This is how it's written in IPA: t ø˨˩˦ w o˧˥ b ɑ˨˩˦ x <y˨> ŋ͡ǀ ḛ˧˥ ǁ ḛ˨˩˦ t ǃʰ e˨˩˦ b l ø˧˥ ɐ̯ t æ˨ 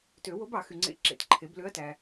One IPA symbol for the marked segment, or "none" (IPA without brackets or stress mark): y˨